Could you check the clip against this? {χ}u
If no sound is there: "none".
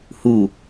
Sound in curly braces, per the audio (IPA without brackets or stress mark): h